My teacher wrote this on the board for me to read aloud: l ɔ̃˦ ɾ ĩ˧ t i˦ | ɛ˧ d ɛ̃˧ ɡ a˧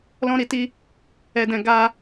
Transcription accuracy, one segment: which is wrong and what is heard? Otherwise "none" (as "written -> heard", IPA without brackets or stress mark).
ĩ˧ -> i˧